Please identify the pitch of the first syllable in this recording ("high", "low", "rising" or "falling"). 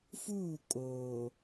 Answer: falling